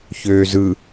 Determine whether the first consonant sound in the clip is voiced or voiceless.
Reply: voiceless